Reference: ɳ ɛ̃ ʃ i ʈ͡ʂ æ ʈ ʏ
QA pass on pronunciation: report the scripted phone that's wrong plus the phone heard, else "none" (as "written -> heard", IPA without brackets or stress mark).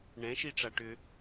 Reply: æ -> a